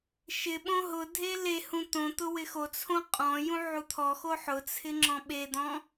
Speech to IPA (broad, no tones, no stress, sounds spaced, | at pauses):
ʃ ɪ ɓ õ ɦ ʊ dʱ e l e h ũ t̪ õ t̪ ʊ w ɪ x o t͡sʰ õ qʼ ɔ̃ j ũ ʕ u t̪ʰ ɔ x o ħ ʊ t͡sʰ ɪ ŋ͡ǁ ɔ̃ ɓ e d̪ ɔ̃